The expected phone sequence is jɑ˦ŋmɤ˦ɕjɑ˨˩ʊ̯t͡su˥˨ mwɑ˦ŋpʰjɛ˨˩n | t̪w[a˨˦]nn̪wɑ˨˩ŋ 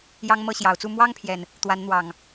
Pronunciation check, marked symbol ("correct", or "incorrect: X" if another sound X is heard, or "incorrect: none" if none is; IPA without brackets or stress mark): correct